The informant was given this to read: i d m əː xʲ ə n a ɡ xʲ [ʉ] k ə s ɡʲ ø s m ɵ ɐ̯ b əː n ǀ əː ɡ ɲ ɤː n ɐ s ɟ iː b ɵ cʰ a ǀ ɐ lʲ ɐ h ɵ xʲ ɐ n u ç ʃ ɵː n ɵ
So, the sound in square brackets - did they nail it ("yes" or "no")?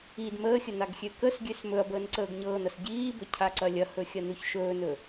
no